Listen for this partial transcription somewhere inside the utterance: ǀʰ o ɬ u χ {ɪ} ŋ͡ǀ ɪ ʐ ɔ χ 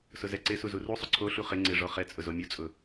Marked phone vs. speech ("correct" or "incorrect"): correct